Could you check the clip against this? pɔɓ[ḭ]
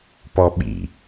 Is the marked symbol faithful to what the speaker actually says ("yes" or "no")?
yes